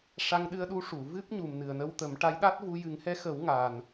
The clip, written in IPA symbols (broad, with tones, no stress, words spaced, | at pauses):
ʂa˧ŋɗɨ˧ə̯ɗu˧˥ ʂu˨˩˨ vɨ˦˥p̚ɲu˨˩m nɨ˨˩ə̯nə˧wt̪ə˨˩˦mʈa˧˥j ɗa˦˥t̚vu˧ jɨ˨˩˦ŋhɛ˧˥xə˨˩˦w ŋaː˨˩n